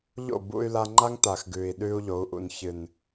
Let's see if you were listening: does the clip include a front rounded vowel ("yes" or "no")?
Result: yes